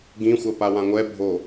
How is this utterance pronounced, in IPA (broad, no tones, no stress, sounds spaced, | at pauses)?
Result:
ɡ ĩ xʷ ɐ p a w ã ŋʷ ɛ bʱ o